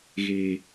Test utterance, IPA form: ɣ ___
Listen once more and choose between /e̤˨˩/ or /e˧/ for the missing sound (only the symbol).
e̤˨˩